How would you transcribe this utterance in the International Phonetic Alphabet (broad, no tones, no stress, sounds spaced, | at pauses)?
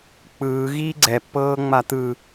k͡p ɯː ɣ iː ɡ͡ǀ ɛ pː ɤː ŋ͡m a t̪ ɯ